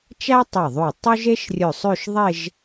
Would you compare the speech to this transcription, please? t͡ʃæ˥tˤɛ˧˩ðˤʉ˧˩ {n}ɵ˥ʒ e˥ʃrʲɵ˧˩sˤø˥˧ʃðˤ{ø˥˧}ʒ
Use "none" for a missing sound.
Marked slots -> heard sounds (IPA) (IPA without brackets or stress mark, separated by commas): tˤ, e˥˧